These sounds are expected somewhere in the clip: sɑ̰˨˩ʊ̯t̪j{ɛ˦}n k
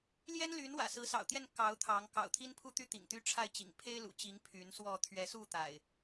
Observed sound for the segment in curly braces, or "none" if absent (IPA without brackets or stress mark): ɛ˥˨